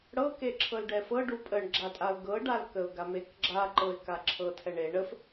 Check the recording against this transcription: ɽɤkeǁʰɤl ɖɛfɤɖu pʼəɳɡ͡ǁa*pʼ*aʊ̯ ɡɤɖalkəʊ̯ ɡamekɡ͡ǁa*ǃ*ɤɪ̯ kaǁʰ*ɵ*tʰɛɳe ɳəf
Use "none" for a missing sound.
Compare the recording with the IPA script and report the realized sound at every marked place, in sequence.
tʼ, ǃ, ɤ

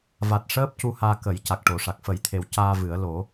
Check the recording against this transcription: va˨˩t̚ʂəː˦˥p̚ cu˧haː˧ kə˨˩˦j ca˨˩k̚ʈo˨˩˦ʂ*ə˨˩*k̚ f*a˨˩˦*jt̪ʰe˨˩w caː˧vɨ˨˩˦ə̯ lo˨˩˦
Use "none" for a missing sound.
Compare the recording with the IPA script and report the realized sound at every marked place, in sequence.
a˨˩, ə˨˩˦

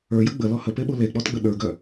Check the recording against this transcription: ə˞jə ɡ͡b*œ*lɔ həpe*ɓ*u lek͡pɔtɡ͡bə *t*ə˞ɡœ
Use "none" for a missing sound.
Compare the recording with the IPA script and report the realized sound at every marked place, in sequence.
ə, ɓ, ɗ

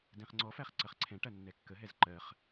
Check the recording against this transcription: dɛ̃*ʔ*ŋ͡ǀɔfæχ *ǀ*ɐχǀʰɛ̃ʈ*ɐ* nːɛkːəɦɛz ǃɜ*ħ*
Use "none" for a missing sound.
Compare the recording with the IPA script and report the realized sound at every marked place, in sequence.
χ, ǀ, ɐ, χ

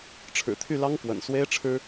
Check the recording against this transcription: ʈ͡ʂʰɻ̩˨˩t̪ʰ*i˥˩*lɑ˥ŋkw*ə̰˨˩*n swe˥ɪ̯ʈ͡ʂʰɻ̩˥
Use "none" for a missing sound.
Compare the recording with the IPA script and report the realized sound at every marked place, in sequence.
y˥˩, ə̰˨˩

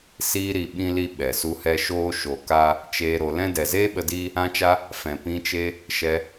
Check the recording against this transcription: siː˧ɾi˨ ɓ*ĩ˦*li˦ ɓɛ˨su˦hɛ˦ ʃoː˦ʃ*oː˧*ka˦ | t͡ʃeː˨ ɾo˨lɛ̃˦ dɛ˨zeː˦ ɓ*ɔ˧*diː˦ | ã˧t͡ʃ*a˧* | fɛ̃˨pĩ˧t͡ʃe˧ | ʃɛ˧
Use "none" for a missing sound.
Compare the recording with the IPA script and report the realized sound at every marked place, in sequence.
ĩ˦, o˧, ə˧, a˧

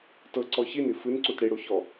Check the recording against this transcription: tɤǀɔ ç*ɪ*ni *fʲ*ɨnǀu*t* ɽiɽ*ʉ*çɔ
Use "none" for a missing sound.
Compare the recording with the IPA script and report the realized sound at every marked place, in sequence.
i, f, t, u

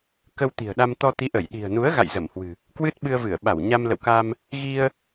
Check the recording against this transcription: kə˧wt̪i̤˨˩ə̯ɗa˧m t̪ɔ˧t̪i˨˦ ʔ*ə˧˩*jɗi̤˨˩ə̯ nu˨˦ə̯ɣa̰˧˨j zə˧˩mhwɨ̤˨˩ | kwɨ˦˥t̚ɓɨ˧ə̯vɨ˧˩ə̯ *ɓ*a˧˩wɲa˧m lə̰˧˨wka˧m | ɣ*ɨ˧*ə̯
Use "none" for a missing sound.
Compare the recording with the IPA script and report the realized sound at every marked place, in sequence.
ə˧˩, ɓ, i˧

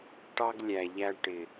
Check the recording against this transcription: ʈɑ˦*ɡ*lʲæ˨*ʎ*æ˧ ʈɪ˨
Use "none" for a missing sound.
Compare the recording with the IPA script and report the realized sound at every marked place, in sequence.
ɡ, ʎ

